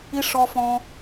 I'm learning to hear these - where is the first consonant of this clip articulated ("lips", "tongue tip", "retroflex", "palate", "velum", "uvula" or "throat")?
retroflex